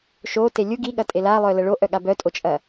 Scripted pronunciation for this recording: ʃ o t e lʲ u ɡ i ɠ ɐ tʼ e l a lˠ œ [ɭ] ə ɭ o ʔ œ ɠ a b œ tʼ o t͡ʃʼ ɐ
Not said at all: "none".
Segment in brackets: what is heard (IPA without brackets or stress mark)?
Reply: l